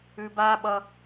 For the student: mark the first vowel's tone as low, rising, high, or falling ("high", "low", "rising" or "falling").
low